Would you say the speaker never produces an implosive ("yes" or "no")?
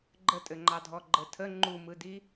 yes